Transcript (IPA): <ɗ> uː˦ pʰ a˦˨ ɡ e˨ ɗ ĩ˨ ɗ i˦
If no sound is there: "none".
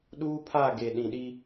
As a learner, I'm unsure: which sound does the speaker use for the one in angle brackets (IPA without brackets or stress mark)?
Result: ɗ